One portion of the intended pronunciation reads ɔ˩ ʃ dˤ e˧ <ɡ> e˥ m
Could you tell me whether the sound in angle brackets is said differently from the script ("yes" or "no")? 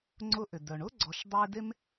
yes